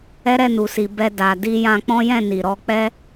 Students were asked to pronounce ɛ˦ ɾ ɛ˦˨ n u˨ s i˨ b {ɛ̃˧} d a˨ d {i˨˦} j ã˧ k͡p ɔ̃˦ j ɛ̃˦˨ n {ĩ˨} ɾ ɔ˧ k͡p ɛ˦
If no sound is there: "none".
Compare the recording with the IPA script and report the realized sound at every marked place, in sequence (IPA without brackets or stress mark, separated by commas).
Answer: ɛ˧, i˧, i˨